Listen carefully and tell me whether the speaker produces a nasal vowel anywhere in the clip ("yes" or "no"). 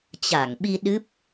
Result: no